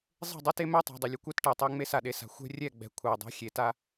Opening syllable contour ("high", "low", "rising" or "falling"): falling